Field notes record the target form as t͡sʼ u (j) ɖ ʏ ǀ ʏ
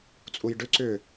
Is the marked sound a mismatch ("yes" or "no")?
no